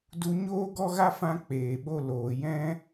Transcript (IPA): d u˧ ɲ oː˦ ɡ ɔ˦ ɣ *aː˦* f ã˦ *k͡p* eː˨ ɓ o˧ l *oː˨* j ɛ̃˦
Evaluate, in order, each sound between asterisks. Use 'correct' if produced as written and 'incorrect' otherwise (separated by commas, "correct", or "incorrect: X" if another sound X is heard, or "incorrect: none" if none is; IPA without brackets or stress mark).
incorrect: a˦, correct, correct